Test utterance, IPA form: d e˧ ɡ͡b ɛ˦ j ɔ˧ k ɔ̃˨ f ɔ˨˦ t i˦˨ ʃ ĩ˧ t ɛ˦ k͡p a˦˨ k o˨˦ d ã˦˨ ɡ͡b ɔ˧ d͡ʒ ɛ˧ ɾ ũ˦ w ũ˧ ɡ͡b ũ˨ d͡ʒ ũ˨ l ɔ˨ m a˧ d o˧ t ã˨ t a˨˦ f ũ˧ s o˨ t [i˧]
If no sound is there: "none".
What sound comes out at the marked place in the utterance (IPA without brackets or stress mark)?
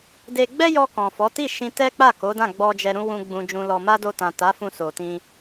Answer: ĩ˧